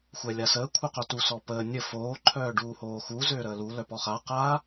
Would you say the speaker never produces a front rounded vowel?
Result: no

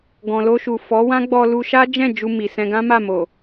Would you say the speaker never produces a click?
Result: yes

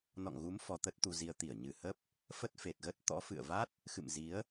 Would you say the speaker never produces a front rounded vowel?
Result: yes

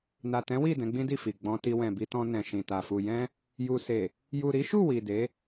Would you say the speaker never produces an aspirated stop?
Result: yes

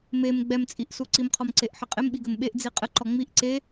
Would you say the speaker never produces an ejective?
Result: no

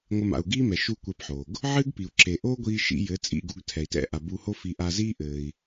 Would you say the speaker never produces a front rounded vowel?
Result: yes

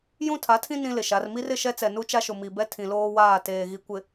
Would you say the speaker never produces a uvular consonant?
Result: yes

